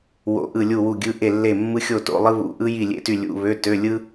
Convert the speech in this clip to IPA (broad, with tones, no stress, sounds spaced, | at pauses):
w o̰˧˥˧ ʔ ɯ˥˨ lʲ u˥˨ w u˥˨ ɡʲ ɯ˧˥˧ ʔ e˥˨ lː e˥˨ mː ɯ˥ xʲ o˥˨ t o̰˧˥˧ lˠ ɯ˥ β ṵ˧˥˧ ʔ ɯ˥ j i˥˨ lʲ ḛ˥˨ t y˥˨ lʲ ṵ˧˥˧ β ø˧˥˧ t ø˧˥˧ lʲ ɯ˥